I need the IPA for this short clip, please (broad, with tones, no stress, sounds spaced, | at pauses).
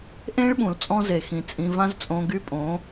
ʔ ẽ˦ ɭ ɓ ũ˨ l t͡sʼ ɔ̃˦ z e˨ x ĩ˨ t͡sʼ ĩ˧ v ã˦ z t͡sʼ õ˧ ɡ y˦ pʼ õ˨˦